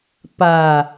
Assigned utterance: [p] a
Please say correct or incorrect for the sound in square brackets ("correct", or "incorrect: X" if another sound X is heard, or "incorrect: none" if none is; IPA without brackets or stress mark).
correct